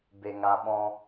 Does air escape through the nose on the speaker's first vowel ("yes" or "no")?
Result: no